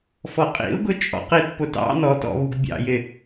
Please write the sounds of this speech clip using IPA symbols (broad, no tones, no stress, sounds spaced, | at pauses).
f ɔ qʼ ḭ ʊ̯ ɡ ʊ t͡ʃʼ ɔ̰ q i t p ʊ t ɑ̰ n ɔ t ɔ̰ β u ɡ bʲ ɑ̰ j ɪ